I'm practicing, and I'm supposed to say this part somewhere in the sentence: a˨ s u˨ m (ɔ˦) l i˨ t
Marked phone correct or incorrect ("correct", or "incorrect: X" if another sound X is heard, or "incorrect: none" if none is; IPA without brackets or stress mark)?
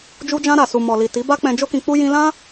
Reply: incorrect: ɔ˨